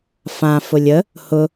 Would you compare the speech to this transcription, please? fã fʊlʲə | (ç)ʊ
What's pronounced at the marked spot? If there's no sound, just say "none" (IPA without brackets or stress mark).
h